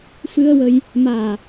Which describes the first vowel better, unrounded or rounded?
unrounded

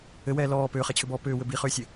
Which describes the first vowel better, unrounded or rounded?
unrounded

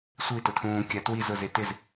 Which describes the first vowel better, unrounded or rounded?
unrounded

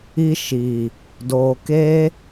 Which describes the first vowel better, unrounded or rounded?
unrounded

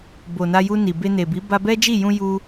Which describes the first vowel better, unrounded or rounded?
rounded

